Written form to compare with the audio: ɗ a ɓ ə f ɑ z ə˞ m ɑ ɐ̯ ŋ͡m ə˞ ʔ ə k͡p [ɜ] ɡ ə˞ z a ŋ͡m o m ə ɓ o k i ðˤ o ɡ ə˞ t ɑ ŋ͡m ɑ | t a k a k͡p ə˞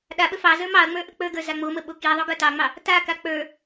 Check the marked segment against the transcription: incorrect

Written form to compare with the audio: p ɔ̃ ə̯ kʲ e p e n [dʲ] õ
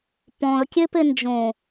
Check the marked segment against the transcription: incorrect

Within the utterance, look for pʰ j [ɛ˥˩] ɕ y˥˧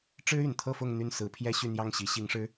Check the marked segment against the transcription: incorrect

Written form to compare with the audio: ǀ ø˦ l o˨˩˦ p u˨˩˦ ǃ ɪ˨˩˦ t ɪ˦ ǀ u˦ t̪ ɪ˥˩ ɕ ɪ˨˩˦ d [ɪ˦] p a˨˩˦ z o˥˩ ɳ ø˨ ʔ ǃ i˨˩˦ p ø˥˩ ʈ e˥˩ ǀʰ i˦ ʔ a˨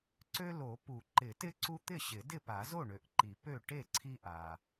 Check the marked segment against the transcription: incorrect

